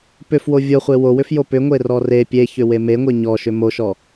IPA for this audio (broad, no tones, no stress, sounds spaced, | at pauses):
p ʏ f w o vʲ o χʷ e w o w ʏ f j o p ʏ ŋʷ e r ɔ r e pʲ e ç ʏ w e m e ŋʷ e ɲ ɔ ʃ ʏ m o ʃ ɔ